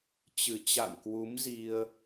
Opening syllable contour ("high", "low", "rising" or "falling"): low